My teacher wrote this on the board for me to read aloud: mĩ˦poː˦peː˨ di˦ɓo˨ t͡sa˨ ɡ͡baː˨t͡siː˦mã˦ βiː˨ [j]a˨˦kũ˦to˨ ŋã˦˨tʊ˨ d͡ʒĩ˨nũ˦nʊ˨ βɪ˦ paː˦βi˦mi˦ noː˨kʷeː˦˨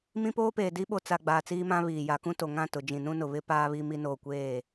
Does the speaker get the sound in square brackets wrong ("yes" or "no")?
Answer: no